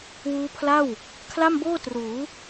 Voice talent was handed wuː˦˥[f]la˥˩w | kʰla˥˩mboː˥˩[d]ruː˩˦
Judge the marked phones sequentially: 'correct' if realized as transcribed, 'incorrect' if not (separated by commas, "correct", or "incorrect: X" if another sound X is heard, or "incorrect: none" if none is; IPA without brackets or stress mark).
incorrect: pʰ, incorrect: t